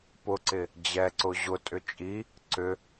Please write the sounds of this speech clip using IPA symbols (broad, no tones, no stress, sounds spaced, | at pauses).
p ʊ ǀ ɪ | d͡ʑ ɛ ǀ ʊ ʑ ʊ tʼ ʏ t͡ʃʼ i | ǀ ʏ